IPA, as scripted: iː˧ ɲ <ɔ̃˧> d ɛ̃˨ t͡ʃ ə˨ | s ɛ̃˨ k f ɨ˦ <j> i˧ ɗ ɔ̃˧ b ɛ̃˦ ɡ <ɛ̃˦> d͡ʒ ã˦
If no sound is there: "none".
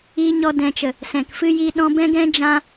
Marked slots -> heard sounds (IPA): ɔ˧, j, ɛ̃˦

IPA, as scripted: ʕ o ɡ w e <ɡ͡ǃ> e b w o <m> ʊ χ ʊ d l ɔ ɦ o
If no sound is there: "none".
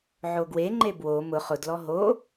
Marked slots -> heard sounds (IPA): ŋ͡ǃ, m

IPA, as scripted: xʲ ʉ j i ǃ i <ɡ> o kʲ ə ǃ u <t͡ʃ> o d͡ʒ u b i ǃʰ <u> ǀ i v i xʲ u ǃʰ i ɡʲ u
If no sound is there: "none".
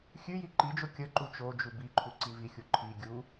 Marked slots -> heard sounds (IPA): d͡ʒ, t͡ʃ, u

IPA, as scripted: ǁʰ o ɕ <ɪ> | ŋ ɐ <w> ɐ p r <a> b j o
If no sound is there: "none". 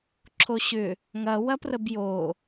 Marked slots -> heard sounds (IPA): ʏ, w, ə

